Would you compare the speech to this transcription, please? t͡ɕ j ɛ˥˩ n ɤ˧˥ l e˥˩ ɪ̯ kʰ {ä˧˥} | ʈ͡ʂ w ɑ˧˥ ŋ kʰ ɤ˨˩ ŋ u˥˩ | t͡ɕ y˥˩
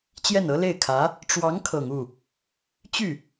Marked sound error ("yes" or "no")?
no